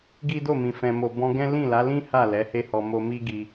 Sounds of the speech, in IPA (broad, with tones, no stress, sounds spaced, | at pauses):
ɡ i˦ d o˦˨ m ĩ˨ f ɛ̃˨ m o˨ b ɔ̃˧ ɡ ɛ̃˦ l ĩ˦˨ l a˨˦ l ĩ˦ h a˦˨ l ɛ˨˦ h e˦ h ɔ˧ m o˧ m i˦ ɡ i˧